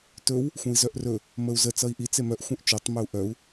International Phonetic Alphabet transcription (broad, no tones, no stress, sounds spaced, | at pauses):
t ɵ w | xʷ œ̃ i̯ z œ ʔ r ɵ | m ə u̯ z ə t͡s ʌ i̯ ʔ i t͡s e m œ ʔ xʷ œ̃ ʔ t͡ʃ o tˤ m ɵ u̯ ʔ œ u̯